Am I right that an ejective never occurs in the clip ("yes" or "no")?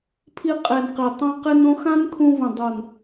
no